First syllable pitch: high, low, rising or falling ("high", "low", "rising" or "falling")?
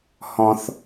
high